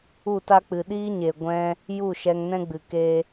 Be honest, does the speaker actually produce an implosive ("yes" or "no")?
yes